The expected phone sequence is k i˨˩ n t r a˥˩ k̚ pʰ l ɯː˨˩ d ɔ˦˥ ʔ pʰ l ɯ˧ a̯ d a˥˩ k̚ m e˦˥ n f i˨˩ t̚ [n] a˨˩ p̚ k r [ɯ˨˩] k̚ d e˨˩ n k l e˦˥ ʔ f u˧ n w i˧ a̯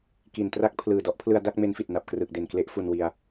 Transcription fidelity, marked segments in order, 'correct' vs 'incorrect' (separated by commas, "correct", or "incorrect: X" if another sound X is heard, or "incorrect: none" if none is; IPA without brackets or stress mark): correct, correct